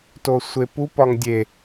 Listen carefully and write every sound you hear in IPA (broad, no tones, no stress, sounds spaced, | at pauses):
t o sʷ e p u p ɒ ŋ dʲ e